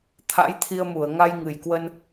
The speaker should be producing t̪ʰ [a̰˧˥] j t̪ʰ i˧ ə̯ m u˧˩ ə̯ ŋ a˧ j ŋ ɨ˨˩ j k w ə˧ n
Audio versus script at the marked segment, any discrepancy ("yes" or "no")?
no